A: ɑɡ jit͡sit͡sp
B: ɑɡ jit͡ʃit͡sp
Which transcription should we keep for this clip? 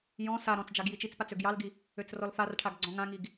B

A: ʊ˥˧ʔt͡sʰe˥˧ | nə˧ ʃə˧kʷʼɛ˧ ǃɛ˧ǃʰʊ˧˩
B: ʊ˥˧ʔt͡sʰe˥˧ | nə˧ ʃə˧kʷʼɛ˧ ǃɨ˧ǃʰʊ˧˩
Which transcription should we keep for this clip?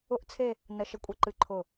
B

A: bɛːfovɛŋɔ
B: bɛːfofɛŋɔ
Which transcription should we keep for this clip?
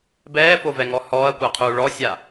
A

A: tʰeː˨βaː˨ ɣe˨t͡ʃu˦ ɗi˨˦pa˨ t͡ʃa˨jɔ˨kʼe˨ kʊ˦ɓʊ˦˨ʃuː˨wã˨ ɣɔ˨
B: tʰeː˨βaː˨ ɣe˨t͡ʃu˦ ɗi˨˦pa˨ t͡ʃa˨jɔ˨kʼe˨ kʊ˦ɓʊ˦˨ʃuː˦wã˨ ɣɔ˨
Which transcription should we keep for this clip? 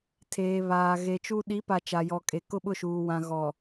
A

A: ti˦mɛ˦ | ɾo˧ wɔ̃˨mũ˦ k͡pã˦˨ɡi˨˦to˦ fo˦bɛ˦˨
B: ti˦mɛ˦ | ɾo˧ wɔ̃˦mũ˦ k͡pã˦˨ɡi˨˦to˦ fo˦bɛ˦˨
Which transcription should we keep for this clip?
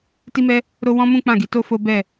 B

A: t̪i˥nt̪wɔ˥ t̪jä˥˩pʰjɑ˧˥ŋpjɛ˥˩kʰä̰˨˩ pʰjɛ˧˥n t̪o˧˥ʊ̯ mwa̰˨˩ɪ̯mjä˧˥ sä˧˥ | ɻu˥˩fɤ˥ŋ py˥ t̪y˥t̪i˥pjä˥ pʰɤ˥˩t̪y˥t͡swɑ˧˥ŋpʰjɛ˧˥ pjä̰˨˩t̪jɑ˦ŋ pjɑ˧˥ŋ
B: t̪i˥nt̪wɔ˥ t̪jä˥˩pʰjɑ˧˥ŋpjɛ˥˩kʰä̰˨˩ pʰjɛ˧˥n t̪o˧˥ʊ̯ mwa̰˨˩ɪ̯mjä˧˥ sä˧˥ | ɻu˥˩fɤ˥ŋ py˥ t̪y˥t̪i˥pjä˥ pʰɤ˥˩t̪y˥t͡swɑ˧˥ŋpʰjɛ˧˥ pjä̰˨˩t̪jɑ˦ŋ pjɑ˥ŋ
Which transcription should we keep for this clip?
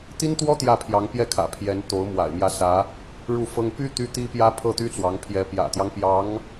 A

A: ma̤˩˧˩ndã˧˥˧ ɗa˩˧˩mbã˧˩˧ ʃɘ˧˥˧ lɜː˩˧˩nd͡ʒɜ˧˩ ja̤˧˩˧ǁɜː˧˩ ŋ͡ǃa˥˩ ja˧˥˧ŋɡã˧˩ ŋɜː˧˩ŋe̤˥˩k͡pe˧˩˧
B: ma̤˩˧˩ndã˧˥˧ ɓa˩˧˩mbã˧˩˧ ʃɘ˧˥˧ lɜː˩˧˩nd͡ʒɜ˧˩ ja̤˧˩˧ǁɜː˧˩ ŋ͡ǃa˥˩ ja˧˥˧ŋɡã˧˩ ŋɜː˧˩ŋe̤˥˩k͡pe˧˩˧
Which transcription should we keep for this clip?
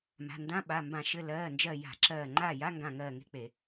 B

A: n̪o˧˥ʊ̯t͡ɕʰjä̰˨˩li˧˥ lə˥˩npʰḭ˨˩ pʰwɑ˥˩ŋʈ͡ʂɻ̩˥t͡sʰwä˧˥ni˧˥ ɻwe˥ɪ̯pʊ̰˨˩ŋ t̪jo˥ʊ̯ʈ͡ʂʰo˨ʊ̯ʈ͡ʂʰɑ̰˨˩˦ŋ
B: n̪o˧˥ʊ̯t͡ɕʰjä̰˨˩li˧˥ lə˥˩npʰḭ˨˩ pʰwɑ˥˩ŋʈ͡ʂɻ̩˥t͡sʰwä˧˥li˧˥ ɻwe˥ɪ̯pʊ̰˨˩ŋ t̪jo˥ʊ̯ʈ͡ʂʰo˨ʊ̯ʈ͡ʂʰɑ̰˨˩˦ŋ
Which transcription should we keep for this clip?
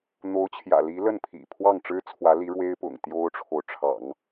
B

